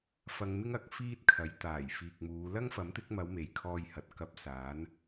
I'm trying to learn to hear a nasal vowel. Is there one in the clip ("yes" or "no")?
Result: no